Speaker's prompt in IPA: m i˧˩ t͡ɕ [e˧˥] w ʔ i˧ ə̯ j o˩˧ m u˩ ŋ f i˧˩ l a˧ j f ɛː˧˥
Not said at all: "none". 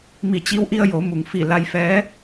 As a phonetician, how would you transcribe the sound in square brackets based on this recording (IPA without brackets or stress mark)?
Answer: i˧˥